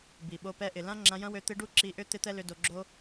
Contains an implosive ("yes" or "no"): yes